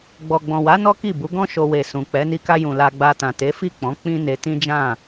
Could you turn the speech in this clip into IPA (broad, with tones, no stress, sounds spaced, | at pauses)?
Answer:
ɡ͡b ɔ˨ ɡ͡b ɔ̃˨ w a˨˦ n ɔ˦ k i˦˨ b u˨˦ ɡ ɔ̃˦ ʃ o˧ w e˨ s ũ˨ k͡p ɛ˨˦ n i˧ k a˧ j ũ˨ l a˧ ɡ͡b a˧ t ã˨ t e˨˦ f i˦˨ k͡p ɔ̃˨˦ k͡p ĩ˦ n e˧ t ĩ˦ d͡ʒ ã˦˨